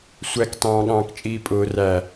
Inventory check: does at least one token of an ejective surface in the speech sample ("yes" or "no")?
yes